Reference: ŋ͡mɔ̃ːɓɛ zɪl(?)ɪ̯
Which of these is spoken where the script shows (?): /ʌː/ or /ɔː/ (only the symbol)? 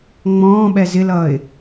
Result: ʌː